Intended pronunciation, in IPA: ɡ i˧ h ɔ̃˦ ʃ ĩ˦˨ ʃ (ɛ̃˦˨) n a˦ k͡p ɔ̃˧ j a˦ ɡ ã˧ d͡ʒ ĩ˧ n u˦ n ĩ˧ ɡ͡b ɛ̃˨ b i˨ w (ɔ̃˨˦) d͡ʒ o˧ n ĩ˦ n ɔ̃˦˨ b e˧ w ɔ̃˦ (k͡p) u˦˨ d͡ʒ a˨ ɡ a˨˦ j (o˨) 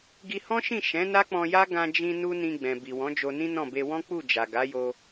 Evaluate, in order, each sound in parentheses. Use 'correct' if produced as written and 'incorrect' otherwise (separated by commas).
incorrect, correct, correct, incorrect